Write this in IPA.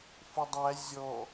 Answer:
f ʊ dˤ æ zʲ ɔ

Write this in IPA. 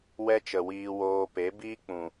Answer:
w ɛ˦ t͡ʃ ə˨ w iː˧ w oː˧ p e˨˦ b iː˦ k͡p ũ˨

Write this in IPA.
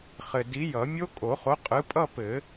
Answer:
χ ɘ˨ d i˨˥ j ʌ˨˩˦ mʲ o˦˥ kʼ o˨˩˦ χ o˨˥ qʼ ɯ˨˥ pʼ ʌ˥˧ p ɘ˨˩˦

